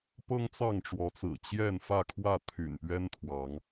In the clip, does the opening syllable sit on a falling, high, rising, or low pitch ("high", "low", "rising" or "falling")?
high